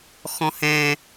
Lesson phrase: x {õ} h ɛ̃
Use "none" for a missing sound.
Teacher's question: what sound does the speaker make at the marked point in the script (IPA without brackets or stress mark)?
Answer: ɔ̃